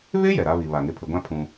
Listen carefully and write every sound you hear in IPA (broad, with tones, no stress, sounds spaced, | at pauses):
β ɪ˦ j ɛ˨ ɾ a˦ β i˨ β a˨ ŋ ɪ˨ pʰ ɪ˨ ɡʷ ã˦ pʰ ũ˦